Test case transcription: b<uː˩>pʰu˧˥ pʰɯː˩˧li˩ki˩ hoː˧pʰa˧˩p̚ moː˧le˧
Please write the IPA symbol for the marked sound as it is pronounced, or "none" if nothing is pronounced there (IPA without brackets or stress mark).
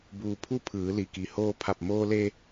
uː˩